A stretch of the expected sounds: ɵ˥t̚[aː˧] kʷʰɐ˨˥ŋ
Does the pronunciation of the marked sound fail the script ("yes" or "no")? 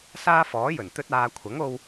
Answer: no